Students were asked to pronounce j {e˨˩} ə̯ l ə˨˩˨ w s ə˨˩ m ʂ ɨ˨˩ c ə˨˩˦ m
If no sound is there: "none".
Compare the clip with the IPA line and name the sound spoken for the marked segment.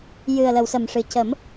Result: ɨ˨˩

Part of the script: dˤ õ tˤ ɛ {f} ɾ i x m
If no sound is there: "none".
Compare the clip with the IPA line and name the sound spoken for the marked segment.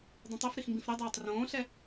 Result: f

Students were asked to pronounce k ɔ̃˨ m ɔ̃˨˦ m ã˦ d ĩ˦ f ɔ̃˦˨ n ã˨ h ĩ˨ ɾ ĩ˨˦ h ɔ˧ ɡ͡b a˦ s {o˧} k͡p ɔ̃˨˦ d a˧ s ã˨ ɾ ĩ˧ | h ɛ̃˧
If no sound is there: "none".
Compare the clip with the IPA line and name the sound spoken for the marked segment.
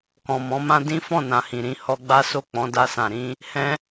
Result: o˦˨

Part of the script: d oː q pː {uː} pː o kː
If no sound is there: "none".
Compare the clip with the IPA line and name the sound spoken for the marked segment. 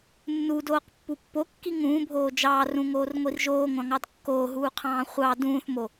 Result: u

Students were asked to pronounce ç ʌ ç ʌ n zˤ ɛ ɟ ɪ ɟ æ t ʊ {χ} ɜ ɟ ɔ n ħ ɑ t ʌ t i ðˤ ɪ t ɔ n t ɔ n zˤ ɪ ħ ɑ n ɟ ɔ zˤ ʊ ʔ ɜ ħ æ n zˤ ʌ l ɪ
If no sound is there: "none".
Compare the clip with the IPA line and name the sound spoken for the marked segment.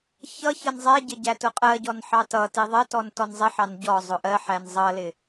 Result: qʼ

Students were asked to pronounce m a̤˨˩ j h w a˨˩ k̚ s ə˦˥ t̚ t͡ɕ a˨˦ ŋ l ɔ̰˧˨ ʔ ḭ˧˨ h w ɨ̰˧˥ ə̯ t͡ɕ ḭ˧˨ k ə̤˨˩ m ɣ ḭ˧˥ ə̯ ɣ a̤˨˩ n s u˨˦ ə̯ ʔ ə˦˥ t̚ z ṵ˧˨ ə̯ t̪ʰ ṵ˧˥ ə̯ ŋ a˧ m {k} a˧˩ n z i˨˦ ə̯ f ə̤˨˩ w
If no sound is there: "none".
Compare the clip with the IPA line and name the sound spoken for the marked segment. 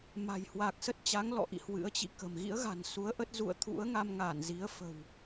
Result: ŋ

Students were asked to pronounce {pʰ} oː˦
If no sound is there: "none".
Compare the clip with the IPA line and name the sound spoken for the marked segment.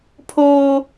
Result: pʰ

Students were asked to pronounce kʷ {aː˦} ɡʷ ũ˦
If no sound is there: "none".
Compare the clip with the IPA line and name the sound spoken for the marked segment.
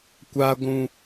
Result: aː˦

